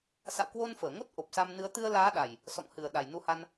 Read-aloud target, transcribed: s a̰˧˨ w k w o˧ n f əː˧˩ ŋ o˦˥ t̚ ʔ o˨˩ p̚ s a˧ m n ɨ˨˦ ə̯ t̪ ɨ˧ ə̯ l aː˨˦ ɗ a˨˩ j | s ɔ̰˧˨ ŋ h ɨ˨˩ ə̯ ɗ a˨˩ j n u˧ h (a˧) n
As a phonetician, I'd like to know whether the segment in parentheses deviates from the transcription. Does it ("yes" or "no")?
no